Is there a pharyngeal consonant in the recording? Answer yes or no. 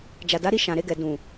no